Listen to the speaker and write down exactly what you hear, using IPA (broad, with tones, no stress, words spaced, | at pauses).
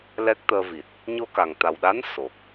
lɛ˦˥k̚t̪əː˧vi˨˩t̚ | ɲo˧ka˨˩ŋt̪a˨˩wɗa˧˥n so˨˩k̚